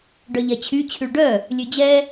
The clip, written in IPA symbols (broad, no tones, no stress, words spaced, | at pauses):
ɖœʎɛt͡ɕʰy t͡ɕʰyɭɖœ | lʲød͡ʑɛ